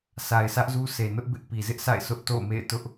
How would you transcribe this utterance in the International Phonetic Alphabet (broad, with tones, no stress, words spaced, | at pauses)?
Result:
sa˨ɪ̯sʰä˦ʔzu˦se˨ nʊ˦ʔbɪ˦ʔ pi˨ zɪ˦ʔsa̰˦˨ɪ̯ sʊ˦ʔto̰˦˨ʊ̯mḛ˦˨ɪ̯tʊ˦ʔ